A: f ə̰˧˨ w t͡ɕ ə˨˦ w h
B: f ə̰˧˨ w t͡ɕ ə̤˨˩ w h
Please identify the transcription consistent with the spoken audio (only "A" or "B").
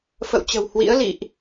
B